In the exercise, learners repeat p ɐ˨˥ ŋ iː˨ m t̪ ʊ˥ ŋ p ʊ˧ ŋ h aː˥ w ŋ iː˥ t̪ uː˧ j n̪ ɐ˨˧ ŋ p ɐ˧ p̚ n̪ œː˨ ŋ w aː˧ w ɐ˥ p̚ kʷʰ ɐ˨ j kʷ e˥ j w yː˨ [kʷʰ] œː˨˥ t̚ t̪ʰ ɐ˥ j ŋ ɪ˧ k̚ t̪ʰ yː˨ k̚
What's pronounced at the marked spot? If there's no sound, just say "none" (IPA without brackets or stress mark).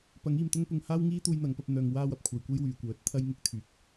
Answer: kʷ